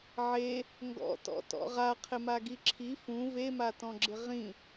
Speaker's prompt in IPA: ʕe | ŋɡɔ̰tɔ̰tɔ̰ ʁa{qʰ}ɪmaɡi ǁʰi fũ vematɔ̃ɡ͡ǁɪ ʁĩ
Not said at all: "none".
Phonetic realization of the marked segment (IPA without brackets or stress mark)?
qʰ